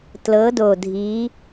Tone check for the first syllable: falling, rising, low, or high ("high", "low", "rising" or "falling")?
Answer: rising